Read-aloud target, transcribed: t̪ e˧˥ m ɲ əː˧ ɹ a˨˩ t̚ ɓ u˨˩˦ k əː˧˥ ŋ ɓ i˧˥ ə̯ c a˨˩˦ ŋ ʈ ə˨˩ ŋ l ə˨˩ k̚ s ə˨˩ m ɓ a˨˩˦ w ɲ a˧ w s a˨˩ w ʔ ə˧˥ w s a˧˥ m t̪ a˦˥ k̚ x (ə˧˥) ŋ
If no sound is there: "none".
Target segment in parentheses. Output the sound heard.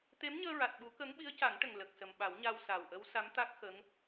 ə˧˥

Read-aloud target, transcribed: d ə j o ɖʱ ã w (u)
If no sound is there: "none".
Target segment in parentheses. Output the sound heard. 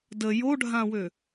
ø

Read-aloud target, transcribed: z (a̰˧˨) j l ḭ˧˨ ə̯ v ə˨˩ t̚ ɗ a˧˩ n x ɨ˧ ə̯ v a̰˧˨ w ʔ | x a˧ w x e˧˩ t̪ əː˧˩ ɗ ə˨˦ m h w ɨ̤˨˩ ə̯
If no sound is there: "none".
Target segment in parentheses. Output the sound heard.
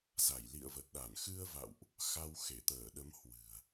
a˧˩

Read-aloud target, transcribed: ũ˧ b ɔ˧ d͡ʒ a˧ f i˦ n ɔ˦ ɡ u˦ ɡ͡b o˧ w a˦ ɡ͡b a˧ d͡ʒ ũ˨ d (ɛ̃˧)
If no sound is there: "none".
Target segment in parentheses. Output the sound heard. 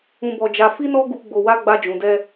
ɛ˧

